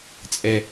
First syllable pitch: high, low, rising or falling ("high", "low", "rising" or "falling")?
low